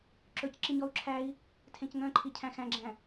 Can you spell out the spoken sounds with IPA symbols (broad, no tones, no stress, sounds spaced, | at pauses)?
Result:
ǁ ɵ c ǁ i ɲ ɔ u̯ ǁʰ æ i̯ | tʰ ẽ c ŋ œ̃ ǃʰ i cʰ æ̃ x æ̃ ɡ͡ǁ æ̃